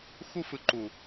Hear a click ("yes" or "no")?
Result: yes